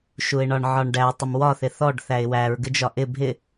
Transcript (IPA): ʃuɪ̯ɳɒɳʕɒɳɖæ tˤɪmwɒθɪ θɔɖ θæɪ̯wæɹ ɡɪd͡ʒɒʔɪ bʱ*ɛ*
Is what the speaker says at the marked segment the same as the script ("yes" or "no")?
no